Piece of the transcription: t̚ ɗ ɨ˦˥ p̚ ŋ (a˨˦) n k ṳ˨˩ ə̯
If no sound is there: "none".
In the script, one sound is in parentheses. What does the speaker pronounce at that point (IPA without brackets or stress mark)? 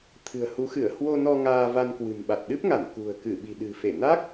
a˧˩